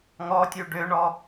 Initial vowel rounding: rounded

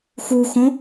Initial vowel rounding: rounded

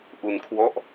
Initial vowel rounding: rounded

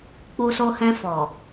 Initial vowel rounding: rounded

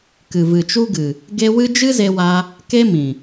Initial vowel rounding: unrounded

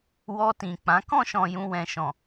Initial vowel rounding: rounded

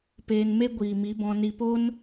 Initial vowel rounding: unrounded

